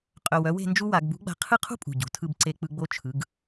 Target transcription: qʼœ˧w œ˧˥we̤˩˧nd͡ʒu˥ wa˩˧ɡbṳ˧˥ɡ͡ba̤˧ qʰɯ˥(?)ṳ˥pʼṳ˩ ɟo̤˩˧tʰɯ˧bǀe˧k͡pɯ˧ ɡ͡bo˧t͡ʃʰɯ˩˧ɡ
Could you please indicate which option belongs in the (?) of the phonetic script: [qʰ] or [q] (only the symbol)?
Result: qʰ